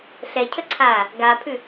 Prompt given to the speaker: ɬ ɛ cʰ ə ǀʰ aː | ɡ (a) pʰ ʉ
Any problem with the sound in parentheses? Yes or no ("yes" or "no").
no